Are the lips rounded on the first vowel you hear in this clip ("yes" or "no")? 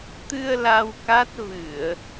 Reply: no